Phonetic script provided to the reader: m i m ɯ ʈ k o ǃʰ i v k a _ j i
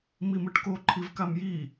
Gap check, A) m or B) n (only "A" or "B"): A